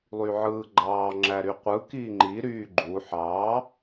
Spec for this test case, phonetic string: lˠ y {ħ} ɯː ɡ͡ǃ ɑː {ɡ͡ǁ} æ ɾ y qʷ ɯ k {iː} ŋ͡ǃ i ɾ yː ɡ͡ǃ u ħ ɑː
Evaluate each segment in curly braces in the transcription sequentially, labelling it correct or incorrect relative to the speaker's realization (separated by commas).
incorrect, incorrect, correct